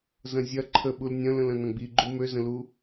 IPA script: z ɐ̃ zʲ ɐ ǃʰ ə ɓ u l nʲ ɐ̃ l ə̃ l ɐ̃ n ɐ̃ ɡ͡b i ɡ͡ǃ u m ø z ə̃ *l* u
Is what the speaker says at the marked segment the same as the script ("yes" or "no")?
yes